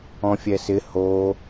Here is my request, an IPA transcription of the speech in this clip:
ɔ̃ fʲ ɛ s ɪ h o

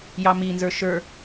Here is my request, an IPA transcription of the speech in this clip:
j ɑ m i n z ə˞ ʃ ə˞

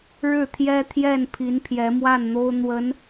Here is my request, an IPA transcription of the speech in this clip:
ɻ ɻ̩˥˩ t̪ʰ j ɛ˥ t̪ʰ j ɛ˥˩ n pʰ i˧˥ n pʰ j ɛ˧˥ m w a˥˩ n n̪ o˥ ʊ̯ n̪ w ə˧˥ n

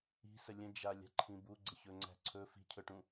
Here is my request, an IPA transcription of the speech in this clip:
i̤ s ə lʲ ə̃ d͡ʒ a lʲ a̤ ǃʰ ĩ b u ɡ͡ǀ ə ç ɵ ŋ͡ǀ æ̤ ǀʰ ɵ f i̤ cʰ ɵ ʈ ũ

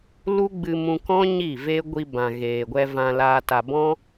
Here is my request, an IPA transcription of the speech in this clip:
l u˦ ɡ͡b ɨ˧ m ũ˧ k ɔ̃˦ ɲ i˦˨ v e˦ ɡʷ i˧ b ã˨ ɣ eː˨ ɡʷ ɛ˧ v ã˧ l aː˧ t a˨ b ɔ̃˦

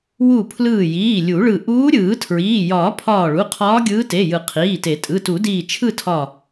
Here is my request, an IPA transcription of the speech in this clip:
w u˧˩ pʰ l ɯː˧˩ j iː˩˧˩ lʲ u˨˩˦ ɭ ɯ˧˩ ʔ uː˧˥ ɾʲ ɯː˨˩˦ tʰ ɹ iː˩˧˩ j ɒː˨˩˦ pʰ ɒː˧˩ ɭ u˩˧˩ qʰ ɒː˧˥ ɡʲ ɯː˧˥ t e˩˧˩ j ɯ˨˩˦ qʰ iː˩˧˩ t e˨˩˦ tʼ ɯ˩˧˩ t u˨˩˦ d iː˧˩ t͡ʃʰ ɯ˥˨ tʰ ɒ˧˩

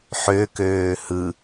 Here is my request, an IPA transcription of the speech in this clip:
ħ ø k øː h ɯ

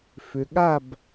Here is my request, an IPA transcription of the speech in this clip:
f ʏ˧ ɠ a˥˧ b

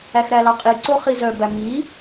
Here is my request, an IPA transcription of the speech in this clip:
æ x ɾ æ l ɑ qʼ i ǀ o χ i z œ b æ m i

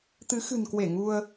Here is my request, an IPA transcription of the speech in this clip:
t̪ ɨ˨˦ x ɨ̤˨˩ n k w e˧˩ ŋ u˧ ə̯

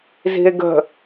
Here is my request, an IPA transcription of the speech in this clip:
z i̤ e̯ ɡ ə̤

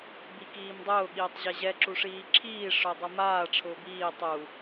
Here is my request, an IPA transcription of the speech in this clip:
b i k iː m dˤ ʊː ɠ iː tˤ ʑ ɛ ʑ ɛ ǁ u ʂ iː ǁʰ iː ʂ ʊ dˤ o m aː ʈ͡ʂʰ ʊː b iː tˤ u

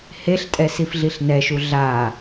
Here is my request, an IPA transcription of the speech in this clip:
h e ɬ tʼ ɛ s i f ɮ i ɬ n ɛ ʃ u ɮ a

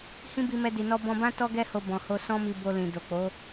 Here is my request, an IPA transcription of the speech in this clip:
h ĩ˦ b i˧ m ɛ˧ d i˨ n ɔ˧ b ɔ̃˧ b ã˦ t ɔ˦ ɡ ɛ˦ h o˧ b ɔ̃˨ h o˧ s ɔ̃˦ m i˧ b o˧ l ĩ˨ d o˨ k͡p o˨˦

